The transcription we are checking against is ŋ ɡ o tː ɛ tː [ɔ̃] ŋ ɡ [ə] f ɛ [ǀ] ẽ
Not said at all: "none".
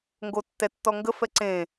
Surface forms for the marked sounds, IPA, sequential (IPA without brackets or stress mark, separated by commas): ɔ, ə, ǀ